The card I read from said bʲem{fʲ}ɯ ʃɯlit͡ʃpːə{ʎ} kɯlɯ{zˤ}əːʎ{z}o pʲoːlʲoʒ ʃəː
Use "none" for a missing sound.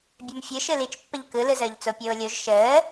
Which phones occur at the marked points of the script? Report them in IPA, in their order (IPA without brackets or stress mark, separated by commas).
fʲ, ʎ, z, t͡s